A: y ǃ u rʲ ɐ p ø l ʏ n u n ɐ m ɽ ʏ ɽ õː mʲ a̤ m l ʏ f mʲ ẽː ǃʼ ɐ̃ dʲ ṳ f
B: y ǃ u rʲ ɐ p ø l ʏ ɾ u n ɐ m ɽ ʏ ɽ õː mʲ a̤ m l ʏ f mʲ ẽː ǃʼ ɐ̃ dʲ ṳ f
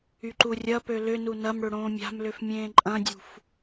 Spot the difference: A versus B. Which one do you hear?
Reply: A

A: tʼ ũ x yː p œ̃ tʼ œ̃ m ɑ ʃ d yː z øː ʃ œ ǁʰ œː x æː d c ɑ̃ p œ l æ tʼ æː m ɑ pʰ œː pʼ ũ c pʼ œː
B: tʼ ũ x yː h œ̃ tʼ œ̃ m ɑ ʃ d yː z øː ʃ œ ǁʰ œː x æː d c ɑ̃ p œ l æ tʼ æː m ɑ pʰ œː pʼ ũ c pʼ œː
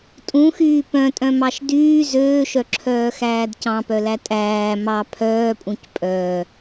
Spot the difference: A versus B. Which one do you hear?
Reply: A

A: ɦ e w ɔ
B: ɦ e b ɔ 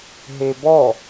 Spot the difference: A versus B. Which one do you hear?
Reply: B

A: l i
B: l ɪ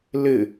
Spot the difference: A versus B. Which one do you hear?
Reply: B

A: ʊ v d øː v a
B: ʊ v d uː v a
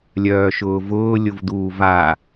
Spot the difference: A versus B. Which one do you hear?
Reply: B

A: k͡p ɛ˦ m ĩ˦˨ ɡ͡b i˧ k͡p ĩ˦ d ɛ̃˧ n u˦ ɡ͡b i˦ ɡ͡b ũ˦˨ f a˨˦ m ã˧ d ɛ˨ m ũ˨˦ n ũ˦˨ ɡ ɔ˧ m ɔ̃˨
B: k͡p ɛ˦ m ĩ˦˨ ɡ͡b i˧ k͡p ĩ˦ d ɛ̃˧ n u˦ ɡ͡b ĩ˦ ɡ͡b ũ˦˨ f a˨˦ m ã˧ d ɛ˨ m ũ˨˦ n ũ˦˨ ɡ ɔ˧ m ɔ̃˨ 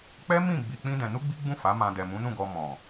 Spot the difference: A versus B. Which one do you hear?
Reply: A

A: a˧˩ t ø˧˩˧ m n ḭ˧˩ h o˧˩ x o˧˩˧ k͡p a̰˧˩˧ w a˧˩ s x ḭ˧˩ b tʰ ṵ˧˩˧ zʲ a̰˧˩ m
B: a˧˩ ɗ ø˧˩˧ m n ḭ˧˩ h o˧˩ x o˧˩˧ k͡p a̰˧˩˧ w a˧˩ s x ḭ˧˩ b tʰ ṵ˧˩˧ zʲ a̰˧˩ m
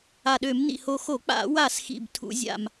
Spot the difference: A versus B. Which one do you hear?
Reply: B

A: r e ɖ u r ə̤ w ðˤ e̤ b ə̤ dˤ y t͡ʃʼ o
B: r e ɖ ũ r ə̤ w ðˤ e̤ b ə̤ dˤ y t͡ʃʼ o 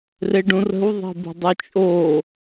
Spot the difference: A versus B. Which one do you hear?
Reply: B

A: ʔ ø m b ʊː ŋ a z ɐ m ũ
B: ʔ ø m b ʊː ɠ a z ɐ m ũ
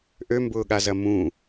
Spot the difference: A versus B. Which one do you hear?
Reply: B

